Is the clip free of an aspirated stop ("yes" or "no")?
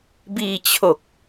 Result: no